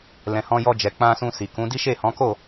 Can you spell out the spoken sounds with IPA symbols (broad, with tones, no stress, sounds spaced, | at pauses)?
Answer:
l ɛ̃˨ h ɔ̃˧ j ɔ˧ d͡ʒ ɛ˨ k͡p ã˧ s ũ˧ s i˨ k ũ˨˦ d i˦ ʃ e˦˨ h ɔ̃˨˦ k o˦˨